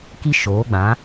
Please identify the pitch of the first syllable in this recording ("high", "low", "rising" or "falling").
high